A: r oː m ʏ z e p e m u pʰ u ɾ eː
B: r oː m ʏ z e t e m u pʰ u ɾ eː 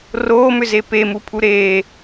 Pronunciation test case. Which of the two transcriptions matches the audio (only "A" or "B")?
A